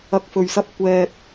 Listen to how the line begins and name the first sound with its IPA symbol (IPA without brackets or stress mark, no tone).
ɐ